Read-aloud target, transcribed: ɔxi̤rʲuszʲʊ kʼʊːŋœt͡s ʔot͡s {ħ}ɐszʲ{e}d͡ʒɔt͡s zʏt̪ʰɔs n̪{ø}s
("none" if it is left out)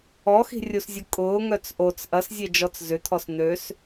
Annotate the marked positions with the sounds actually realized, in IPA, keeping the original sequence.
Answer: ʔ, e, ø

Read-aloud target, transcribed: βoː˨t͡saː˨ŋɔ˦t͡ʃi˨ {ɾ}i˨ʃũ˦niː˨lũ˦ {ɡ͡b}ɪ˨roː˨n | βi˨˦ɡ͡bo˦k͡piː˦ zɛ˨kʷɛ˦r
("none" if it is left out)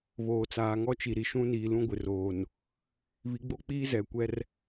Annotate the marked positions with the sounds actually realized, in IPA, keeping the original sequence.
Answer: ɾ, ɡʷ

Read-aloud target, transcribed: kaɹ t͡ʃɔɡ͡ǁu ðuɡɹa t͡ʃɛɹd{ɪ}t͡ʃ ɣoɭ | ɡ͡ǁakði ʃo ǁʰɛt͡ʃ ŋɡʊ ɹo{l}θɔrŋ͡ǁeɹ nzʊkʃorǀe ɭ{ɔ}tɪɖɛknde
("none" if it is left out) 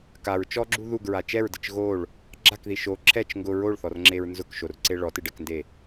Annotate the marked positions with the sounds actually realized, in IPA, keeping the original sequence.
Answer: ɪ, ɭ, ɔ

